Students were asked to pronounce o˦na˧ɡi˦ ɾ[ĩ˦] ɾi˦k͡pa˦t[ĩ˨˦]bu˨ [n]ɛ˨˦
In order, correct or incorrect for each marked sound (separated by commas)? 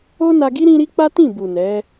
correct, incorrect, correct